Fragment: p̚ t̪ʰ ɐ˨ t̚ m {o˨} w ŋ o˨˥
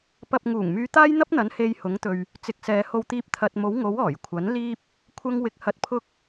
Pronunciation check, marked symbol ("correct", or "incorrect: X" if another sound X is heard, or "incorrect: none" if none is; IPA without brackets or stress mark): incorrect: o˨˥